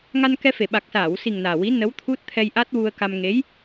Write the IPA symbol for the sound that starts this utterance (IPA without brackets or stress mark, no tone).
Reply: ŋ